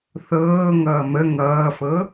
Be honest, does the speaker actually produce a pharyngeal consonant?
no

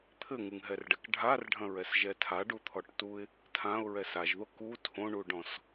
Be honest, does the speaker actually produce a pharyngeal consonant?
no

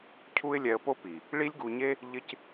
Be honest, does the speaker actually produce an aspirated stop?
yes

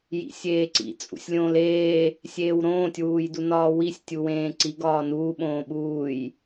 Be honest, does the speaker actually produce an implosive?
yes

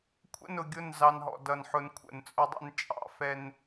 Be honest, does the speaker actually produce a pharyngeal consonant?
yes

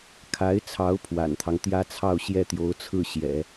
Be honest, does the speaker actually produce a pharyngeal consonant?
no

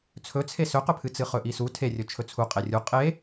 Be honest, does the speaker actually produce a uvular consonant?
yes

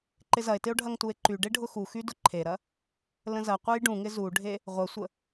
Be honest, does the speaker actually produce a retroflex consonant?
yes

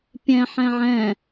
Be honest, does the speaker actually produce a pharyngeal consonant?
yes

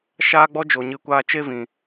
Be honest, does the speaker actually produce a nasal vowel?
yes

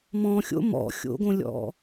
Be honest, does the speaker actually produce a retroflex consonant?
no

